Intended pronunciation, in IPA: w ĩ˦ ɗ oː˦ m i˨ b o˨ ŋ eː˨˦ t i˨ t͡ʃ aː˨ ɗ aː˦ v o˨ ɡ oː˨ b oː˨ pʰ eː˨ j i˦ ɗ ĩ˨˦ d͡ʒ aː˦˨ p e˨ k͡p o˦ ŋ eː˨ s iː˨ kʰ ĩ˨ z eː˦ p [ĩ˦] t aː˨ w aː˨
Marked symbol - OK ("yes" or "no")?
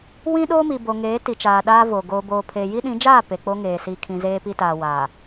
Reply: no